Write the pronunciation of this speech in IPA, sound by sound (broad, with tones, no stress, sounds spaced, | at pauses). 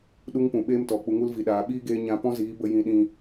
ɗ u˦ ŋ p ũ˨ ɓ eː˦ m t ɔ˨ k͡p u˨ ŋ u˦ l v i˨ ɗ aː˨ ɓ iː˦ ɡ eː˧ ɲ ã˧ p ɔ̃˦ z iː˨˦ b ə˧ j ĩ˧ ɗ ĩ˧